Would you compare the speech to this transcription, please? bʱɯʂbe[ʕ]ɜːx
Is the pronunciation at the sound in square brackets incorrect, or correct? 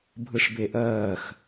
incorrect: ʔ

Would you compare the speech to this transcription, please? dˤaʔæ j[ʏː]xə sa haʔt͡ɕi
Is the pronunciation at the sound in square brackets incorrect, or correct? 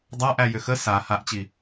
incorrect: ʏ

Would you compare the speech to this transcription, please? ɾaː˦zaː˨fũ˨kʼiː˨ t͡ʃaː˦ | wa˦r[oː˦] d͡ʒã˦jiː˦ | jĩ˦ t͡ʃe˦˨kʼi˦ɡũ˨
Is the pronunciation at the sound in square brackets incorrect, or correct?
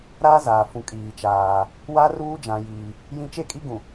incorrect: uː˦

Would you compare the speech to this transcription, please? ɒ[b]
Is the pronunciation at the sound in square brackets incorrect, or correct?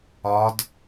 incorrect: d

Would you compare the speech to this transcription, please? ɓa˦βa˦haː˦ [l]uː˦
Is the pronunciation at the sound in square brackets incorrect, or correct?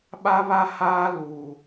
correct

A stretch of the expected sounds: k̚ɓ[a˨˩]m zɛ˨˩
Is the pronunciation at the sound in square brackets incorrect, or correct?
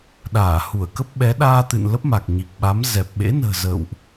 incorrect: a˨˦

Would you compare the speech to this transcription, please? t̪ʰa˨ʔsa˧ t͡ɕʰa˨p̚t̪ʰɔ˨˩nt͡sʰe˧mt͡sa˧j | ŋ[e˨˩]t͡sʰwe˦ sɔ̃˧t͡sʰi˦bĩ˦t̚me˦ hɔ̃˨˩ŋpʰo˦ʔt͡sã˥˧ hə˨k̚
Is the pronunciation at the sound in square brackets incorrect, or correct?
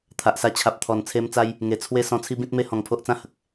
correct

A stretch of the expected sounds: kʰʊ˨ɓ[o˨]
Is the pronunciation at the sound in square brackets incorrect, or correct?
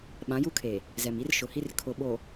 correct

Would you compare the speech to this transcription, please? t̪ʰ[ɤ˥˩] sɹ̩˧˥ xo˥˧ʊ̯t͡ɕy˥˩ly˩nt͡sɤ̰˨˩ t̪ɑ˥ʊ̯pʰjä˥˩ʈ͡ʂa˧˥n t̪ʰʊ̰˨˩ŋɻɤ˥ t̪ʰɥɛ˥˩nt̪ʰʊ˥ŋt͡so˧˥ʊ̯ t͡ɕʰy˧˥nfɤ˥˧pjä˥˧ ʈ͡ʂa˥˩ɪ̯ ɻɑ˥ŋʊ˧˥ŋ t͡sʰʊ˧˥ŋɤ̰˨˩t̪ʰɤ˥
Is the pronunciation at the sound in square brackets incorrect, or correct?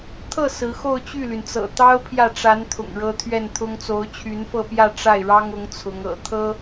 correct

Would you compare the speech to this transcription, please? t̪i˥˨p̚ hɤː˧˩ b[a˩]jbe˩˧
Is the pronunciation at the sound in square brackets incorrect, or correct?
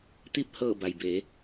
correct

